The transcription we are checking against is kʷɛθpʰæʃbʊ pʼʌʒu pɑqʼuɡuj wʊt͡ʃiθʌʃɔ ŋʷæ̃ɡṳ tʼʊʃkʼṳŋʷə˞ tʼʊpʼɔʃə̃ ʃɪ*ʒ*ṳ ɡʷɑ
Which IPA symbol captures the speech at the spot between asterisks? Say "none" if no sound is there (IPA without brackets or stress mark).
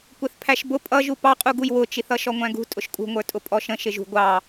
ʒ